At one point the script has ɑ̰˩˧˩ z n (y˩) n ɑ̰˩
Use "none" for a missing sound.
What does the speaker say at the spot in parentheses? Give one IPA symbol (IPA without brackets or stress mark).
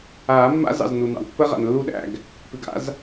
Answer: u˩